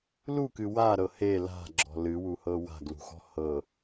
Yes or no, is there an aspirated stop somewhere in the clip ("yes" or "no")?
no